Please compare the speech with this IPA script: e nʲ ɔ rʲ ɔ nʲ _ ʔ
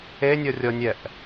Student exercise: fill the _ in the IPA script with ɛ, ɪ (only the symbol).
ɛ